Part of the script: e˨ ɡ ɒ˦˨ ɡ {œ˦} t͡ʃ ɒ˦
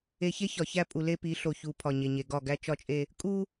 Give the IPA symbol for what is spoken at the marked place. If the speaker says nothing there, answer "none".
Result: æ˦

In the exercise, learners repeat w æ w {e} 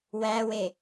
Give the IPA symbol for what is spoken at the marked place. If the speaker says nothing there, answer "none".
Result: e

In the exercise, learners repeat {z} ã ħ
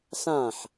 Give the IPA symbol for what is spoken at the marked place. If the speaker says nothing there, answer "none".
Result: s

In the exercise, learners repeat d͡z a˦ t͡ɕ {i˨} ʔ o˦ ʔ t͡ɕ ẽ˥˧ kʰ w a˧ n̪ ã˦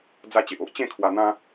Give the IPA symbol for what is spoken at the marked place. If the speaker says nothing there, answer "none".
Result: e˨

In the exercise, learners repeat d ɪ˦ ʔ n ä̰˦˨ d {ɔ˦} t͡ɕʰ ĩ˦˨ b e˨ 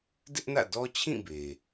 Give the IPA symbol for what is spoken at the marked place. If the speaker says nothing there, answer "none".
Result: ɔ˦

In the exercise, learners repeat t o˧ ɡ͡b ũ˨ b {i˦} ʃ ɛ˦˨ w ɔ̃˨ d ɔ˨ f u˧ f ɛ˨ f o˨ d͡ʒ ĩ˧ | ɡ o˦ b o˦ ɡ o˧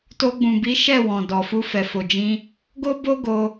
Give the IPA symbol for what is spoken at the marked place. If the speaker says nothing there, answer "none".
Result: i˨˦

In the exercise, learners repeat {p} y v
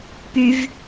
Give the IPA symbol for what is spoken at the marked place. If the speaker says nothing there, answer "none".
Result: p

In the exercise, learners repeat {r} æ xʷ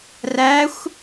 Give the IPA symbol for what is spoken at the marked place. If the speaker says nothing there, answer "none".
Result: r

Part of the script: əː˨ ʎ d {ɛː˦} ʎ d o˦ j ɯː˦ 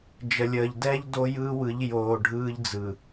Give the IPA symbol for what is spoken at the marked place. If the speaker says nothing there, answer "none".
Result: ɛː˦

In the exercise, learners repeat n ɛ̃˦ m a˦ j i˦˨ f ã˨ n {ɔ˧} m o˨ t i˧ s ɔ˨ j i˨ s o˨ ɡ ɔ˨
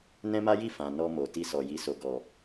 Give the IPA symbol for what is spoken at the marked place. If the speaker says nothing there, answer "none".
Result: ɔ˧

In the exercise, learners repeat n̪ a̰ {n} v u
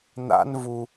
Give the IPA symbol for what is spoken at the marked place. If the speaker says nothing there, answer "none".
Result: n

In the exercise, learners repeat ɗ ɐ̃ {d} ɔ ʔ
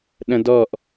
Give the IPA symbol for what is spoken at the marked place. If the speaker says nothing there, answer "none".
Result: d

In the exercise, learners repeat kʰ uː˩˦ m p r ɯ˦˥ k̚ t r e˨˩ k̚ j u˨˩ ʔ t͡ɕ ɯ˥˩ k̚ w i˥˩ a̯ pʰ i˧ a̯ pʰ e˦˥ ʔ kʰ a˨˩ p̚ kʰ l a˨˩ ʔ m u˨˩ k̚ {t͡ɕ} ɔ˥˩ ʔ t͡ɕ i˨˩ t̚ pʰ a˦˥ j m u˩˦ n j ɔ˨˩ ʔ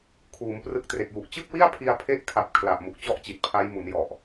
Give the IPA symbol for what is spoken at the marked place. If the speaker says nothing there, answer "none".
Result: t͡ɕ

